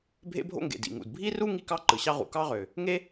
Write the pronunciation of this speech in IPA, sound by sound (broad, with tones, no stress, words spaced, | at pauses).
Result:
bʱḛ˥bʱo̰˥ŋɡḛ˩ dḭ˩ŋṵ˩d bʱi˥ru˥ ŋi˥kɑ˥ ǃɯ˩ɕɑ˥ʁṵ˩ kɑ˥ʁø˩ | ŋe˥